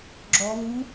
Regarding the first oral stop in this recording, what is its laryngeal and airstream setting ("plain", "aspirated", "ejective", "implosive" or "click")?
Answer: click